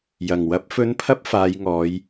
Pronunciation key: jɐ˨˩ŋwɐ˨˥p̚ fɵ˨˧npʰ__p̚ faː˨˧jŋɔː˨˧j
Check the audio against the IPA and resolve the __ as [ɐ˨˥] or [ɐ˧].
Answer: ɐ˧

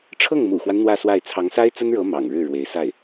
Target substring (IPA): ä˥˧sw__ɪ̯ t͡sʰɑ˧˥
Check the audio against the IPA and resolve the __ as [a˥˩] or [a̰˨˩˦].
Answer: a˥˩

